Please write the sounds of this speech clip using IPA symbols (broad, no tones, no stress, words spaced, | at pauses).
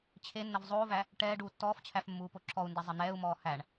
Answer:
t͡ɕʰenːəv zˤoːvæ | ʈɛː ɖuːtːɔːft͡ɕʰæf mːuːpoǁʰɔu̯ndɛ zˤən̪ɛːu̯mɔː hæɳ